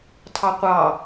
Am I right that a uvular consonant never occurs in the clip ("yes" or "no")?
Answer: no